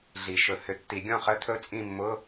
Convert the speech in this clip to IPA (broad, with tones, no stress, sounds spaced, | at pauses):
ɮ i˨˩˦ ʃ ɵ˨˩˦ h ʏ˨˩˦ tː i˨˩˦ ɡʲ ɔ̃˥˨ χ ə˧˥˧ t̪ʰ ɵ˥˨ t͡sʼ ĩ˥˨ mː ʊ˧˥˧